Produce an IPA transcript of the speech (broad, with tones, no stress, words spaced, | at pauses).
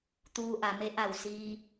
t̪uː˧ʔa˩˧me˧˥ ʔa˧˩wsiː˧